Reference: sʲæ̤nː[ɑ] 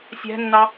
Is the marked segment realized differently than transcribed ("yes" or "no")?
no